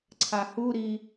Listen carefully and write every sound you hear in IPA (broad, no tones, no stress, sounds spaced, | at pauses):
ǀʰ a h u ɾ i